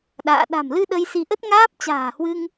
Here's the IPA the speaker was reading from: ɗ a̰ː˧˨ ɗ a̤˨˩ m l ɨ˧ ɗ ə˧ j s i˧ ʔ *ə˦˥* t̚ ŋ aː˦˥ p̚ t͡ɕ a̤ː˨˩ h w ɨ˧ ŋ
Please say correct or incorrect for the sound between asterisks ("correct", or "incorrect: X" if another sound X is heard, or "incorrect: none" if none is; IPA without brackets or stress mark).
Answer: correct